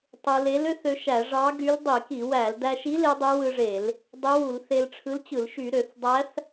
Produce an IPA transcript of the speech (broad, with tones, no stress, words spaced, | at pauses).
tˤɯ˧ le˧˥lø˧˥θ ø˧ʃæ˧˩˧ ʐɑ˧˥ ɡy˧˥l dˤi˧˩˧ki˧˩˧wæ˧˩˧l dæ˧ʃi˧˥ le˧˥dˤe˧˥wɯ˧ʐe˧˩˧l | dˤe˧˥wu˧˩˧l θe˧lʈ͡ʂʰɯ˧˥lt͡ɕɯ˧˩˧l ʃy˧˩˧ɾø˧˩˧θdˤæ˧˥θ